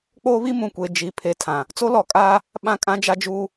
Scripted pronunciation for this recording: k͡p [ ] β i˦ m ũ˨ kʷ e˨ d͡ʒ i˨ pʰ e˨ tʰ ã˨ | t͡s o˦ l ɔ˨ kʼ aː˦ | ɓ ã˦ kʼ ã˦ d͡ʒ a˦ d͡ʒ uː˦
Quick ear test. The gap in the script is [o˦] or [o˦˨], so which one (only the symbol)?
o˦